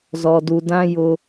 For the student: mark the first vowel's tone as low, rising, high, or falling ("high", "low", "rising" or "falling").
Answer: low